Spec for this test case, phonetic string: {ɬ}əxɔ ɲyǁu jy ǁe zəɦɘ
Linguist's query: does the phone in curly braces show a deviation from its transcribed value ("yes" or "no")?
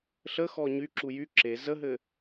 no